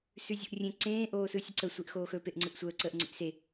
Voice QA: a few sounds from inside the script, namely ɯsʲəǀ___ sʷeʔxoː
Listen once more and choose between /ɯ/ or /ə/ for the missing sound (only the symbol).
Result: ə